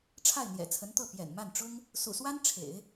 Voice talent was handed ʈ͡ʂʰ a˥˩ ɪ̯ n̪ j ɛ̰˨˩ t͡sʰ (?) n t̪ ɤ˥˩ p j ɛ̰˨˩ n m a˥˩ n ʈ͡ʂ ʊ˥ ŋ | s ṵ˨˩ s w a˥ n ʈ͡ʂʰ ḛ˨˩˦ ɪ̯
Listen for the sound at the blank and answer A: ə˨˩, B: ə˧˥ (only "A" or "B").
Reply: B